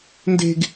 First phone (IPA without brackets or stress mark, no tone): n